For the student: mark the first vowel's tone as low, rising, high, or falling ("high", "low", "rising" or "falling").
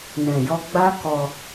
low